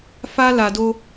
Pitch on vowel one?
high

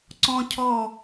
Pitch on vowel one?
high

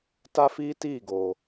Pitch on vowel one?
high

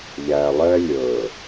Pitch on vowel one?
low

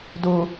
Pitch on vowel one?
high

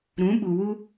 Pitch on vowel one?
rising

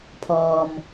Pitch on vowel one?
low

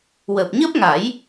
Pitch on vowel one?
low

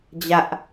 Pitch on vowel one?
high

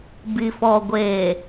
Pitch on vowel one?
low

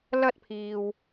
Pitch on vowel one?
high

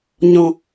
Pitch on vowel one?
high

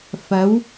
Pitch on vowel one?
rising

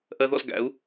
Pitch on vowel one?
high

